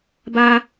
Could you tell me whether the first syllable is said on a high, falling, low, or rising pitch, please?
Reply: high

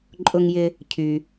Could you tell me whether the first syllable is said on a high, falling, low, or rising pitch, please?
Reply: high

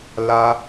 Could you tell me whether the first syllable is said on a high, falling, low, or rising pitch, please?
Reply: high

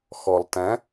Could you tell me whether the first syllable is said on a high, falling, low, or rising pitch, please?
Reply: low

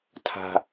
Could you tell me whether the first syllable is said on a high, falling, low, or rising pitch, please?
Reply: low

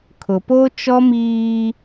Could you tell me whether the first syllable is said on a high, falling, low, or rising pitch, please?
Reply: low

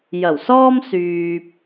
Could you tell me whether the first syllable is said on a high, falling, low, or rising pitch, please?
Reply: low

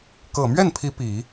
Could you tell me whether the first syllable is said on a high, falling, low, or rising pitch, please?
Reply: low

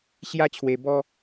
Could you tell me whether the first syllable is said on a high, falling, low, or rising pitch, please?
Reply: high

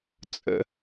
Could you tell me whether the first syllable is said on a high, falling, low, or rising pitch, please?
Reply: high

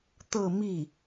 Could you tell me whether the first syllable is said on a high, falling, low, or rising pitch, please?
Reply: falling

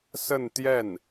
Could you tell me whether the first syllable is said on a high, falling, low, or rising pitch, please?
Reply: falling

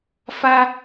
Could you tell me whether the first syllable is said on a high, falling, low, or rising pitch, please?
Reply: high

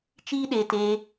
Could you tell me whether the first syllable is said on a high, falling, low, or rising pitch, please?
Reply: high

